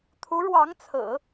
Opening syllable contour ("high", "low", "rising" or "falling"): rising